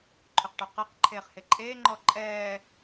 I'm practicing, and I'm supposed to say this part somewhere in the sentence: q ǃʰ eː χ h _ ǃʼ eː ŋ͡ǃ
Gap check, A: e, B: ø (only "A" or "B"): A